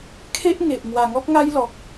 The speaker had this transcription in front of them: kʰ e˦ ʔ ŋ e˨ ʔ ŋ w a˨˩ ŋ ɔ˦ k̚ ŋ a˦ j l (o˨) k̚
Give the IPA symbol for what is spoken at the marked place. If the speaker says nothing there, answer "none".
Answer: ɔ˨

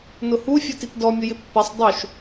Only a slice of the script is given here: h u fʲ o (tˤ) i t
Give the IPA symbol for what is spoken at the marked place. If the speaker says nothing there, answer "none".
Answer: t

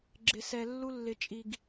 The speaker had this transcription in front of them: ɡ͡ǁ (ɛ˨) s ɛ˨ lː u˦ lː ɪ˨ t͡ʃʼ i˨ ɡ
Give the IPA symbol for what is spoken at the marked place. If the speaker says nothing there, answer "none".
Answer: ɪ˨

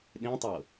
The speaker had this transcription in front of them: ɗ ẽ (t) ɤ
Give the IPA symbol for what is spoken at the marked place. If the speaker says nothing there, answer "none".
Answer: tˤ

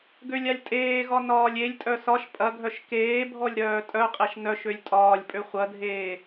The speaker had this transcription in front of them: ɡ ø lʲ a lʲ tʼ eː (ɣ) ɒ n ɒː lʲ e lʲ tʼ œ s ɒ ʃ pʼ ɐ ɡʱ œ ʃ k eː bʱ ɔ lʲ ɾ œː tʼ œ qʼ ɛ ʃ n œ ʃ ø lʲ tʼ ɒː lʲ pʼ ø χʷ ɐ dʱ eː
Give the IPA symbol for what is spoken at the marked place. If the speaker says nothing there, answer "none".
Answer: ɣ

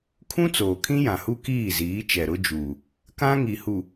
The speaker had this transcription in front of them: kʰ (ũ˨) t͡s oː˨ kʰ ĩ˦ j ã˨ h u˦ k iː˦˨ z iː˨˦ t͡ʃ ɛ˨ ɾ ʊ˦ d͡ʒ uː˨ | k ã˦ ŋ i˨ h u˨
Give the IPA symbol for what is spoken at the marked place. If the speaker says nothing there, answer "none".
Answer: ũ˦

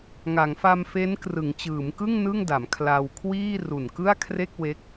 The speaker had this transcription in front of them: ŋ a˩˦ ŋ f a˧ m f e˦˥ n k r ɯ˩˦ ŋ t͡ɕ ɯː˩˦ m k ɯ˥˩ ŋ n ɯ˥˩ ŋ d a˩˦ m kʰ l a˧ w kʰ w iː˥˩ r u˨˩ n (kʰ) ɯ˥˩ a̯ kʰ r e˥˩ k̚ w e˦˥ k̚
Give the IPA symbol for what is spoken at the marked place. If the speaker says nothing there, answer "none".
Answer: k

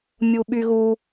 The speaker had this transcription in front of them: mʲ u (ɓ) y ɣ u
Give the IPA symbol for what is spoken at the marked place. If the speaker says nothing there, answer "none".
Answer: ɓ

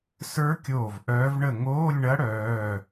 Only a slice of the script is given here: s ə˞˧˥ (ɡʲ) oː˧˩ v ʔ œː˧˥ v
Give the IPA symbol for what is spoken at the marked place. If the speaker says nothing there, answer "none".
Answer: kʲ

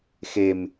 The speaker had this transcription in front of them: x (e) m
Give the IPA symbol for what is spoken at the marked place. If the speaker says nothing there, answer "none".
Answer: e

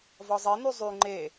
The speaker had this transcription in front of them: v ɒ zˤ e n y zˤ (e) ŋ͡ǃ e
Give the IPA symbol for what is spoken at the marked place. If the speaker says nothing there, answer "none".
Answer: y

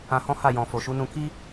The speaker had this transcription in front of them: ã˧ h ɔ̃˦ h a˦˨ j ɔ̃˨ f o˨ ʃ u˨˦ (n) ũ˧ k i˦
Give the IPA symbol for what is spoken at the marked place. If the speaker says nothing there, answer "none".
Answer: n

